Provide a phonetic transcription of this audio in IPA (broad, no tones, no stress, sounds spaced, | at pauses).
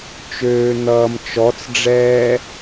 t͡ʃ øː n̪ ʌː m t͡ʃ ɔ t͡s ɖ͡ʐ ɛː